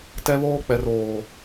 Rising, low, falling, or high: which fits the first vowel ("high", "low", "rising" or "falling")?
high